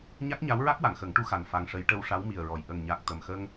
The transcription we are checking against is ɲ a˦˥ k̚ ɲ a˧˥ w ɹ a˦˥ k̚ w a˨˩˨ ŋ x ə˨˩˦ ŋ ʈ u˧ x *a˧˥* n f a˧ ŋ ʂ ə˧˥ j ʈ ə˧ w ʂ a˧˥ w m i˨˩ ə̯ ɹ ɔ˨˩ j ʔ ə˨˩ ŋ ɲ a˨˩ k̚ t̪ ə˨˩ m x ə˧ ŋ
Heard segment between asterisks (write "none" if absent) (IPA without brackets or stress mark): a˨˩